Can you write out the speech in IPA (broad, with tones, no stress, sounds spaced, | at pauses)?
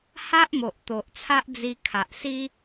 h a˦ ʔ m o˨ ʔ t̪ o˨ ʔ t͡sʰ a˦ ʔ d͡z i˧ kʰ a˨ ʔ s i˦